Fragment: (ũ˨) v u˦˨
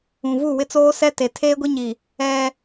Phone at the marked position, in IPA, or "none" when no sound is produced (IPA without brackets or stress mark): ũ˨